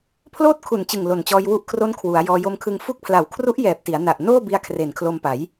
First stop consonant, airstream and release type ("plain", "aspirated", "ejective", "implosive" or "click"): aspirated